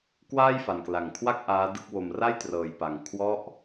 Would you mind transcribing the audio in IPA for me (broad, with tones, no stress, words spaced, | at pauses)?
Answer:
kwaː˥˩jfa˨˩nkla˨˩ŋkʰwa˥˩k̚ ʔaː˦˥dɯ˥˩k̚ wo˨˩mra˥˩jtrɤː˨˩jpa˨˩ŋ kʰwɔ˦˥ʔ